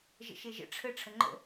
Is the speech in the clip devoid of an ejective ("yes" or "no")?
yes